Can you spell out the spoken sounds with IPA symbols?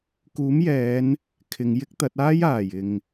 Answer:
k uː˨˥ m j ɛː˨˧ n | kʰ ɪ˨˧ ŋ j ɪ˥ k̚ t̪ ɐ˨˥ t̚ aː˥ j aː˨˩ j ɪ˨ ŋ

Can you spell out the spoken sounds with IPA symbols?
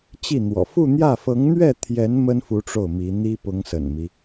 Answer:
t͡ɕ i˥˩ n̪ w ɔ̰˨˩ f u˥˧ n̪ j ä˥˩ f ɤ˧˥ ŋ n̪ ɥ ɛ˥˩ t̪ʰ j ɛ˧˥ n m ə˥ n f u˧˥ ʈ͡ʂ o˥˩ ʊ̯ m i˧˥ n̪ i˥ p ʊ˧˥ ŋ s ə̰˨˩ n m i˦

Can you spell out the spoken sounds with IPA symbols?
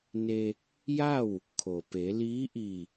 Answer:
n e˧ | j a˥˨ w | kʰ o˩ p e˩˧ l iː˧˥ ʔ i˧˩

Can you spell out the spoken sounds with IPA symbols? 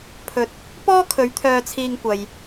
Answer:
pʰ ɵ˨˥ t̚ | p ɔː˥ kʰ ɵ˨˧ ɥ t̪ʰ œː˧ t͡sʰ iː˧ ŋ kʷ ɐ˨ j

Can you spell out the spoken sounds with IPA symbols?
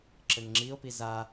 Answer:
ǁ ɘ ŋ ŋ͡ǁ i o̯ p i z a

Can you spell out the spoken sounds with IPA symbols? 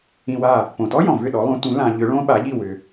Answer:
ĩ˧ w a˥˩ | p õ˩ t ɔ˥ j ɔ̃˩ v ʏ˥˩ ɗ ɔ˩˥ lˠ ũ˩˥ t ũ˩˥ l ã˧ ʎ ʏ˩˥ ɭ õ˥ ɓ a˩˥ ʎ i˥˩ w ʏ˩

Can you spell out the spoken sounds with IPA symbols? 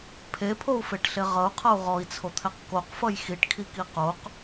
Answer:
pʰ e pʰ o u̯ f e ʈ ɬ e ʁ ʌ u̯ qʰ ʌ u̯ ʁ ɔ i̯ t͡sʰ o t̪ʰ ɛ q k o q f ʌ j x i ʈ kʰ i k i q o q

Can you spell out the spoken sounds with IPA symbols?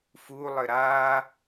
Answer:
f u lˠ ɘ ɾ a

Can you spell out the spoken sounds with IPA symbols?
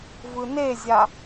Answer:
v ɯ n e zʲ a

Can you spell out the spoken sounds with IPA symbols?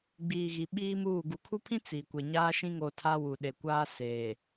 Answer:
ɡ͡b iː˨ ɣ i˨ ɓ iː˦ m uː˦˨ ɡ u˨ kʰ u˦ pʰ ĩ˦ t͡s i˨ kʷ e˨ ɲ aː˦ ʃ ĩ˦ ŋ o˨ tʰ a˦ w u˨ ɗ e˨ kʷ aː˦ s eː˨

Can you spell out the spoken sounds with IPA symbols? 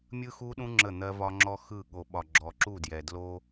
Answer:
mʲ ɯ˦ x u˦ ɗ ũ˦ ŋ͡ǁ ə˦˨ n̪ ɜ˦ v ɒ˦ ŋ͡ǁ ɔ˦ x ɯ˦˨ ɠ o˨ ɓ ɒ˨ ɡ͡ǁ ɔ˨ ǁ u˦˨ d j ɛ˨ d l o˦

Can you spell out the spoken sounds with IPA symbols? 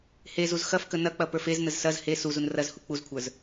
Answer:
h e z u z x ɐ f k ə n ɐ k͡p ɐ p ə˞ f e z n ə z s ɐ z h e s u z u n r ɐ z h u k͡p u z kʷʰ ə˞ z

